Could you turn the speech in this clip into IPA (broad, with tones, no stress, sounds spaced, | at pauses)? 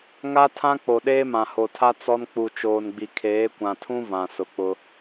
ŋ a˦ tʰ ã˦ k͡p o˨ ɗ eː˦ m ã˨ h o˨ tʰ a˦ t͡s ɔ˦ n k͡p u˨ t͡ʃ oː˨ n ɡ͡b i˨ kʰ eː˨˦ kʷ ã˨ tʰ ũ˦ v ã˨ s ʊ˨ k͡p ʊ˦